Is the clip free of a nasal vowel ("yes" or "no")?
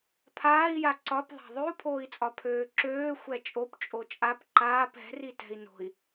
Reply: yes